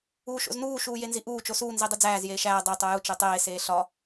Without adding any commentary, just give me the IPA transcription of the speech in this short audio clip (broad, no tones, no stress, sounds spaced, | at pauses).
uː ʃ o̰ z n uː ʃ uː j e n z i ʔ uː t͡ʃ o s uː n z i dˤ i d͡z æː z j eː ʃ æː dˤ e tˤ o j u t͡ʃ e tˤ eː s eː ɬ ɒ